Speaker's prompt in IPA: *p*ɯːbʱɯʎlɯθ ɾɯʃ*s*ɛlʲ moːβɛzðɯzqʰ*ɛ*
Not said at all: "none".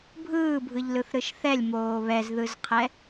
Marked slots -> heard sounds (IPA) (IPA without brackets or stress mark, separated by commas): bʱ, θ, ɛ